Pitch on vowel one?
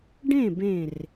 falling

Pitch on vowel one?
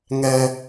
high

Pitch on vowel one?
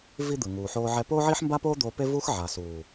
high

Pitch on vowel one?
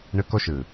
high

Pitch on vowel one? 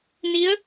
rising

